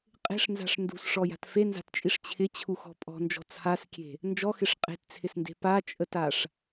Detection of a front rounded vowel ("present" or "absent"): absent